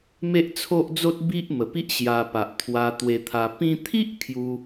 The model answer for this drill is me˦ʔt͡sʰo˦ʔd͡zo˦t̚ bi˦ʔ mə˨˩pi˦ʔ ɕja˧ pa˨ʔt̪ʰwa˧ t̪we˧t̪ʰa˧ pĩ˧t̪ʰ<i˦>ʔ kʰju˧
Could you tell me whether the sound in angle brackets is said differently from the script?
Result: no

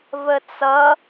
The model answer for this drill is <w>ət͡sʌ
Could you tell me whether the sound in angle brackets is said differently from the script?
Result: yes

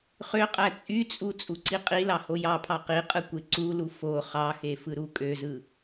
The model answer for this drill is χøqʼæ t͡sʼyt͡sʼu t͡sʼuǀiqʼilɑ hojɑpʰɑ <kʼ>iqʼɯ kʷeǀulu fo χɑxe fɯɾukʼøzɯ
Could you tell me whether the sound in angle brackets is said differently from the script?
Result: yes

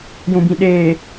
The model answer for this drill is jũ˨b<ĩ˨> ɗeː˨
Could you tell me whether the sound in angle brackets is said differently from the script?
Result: no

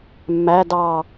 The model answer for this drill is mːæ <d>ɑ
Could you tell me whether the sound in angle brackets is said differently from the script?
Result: no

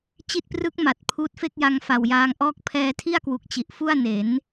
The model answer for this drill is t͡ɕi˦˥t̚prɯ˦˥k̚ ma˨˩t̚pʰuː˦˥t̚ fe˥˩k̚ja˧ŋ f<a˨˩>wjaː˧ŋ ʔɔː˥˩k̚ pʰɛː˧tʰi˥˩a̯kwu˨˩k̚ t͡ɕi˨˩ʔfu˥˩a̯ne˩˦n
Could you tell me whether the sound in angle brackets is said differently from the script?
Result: no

